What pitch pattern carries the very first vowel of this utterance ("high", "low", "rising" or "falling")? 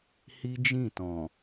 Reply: high